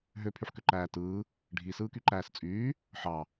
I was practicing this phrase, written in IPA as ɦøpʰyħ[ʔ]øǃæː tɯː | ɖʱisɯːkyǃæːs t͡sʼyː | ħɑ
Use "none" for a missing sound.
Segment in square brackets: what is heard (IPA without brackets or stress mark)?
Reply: k